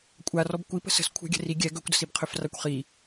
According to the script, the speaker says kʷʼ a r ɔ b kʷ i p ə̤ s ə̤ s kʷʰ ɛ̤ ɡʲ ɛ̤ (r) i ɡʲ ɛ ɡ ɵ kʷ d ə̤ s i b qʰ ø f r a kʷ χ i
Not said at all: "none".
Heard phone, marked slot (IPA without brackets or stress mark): r